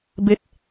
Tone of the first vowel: rising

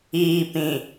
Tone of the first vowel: low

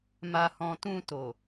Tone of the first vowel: low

